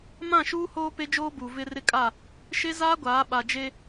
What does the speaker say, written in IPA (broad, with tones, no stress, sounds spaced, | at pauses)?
m ã˦˨ ʃ uː˦ h oː˦ p e˦ d͡ʒ oː˦ b uː˨ v ɪ˦ r ɪ˦ kʼ a˦˨ | ʃ e˦ z aː˦ ɡʷ aː˨˦ ɓ a˨ d͡ʒ e˦